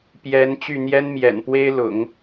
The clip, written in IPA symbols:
p j ɛ˧˥ n t͡ɕ y˥˩ n̪ j ɛ˥ n m j ɛ̰˨˩ n p w e˥ ɪ̯ l ʊ̰˨˩˦ ŋ

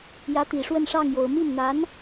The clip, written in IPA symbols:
j ä˧˥ t̪ i˨˩ ʂ w ə˥˧ n ʂ ɑ˥˩ ŋ j o˨˩ ʊ̯ m i˥˩ n n̪ a˧˥ n

